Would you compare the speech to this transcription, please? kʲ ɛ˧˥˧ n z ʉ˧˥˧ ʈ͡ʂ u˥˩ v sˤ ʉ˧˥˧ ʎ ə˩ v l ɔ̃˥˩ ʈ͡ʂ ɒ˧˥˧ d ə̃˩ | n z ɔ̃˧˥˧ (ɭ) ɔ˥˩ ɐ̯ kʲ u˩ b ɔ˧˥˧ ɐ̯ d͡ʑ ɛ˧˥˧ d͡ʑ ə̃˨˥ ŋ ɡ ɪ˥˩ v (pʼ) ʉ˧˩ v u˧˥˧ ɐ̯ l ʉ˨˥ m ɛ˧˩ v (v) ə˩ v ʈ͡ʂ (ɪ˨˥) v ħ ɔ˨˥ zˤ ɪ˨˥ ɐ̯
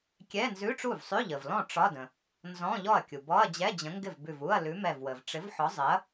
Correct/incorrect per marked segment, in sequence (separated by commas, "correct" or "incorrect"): incorrect, incorrect, incorrect, correct